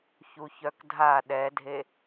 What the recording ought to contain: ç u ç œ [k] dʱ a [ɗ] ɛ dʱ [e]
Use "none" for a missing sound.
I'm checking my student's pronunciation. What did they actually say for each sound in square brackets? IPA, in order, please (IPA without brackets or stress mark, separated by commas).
k, ɗ, e